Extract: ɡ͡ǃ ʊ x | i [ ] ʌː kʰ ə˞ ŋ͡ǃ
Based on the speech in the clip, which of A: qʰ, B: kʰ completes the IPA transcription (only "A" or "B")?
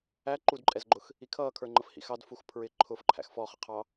B